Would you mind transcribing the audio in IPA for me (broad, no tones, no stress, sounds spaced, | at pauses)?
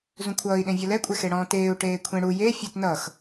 z ũ kʷʰ ʌː i̯ ɗ ẽ vʲ ʌ l ɛ kʷʼ ɛ x e ɽ ɔ̃ː t eː u̯ ʈ eː kʷʰ ẽ ɽ u j e fʲ ə t n ʌ x